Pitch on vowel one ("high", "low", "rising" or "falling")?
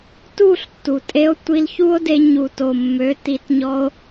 falling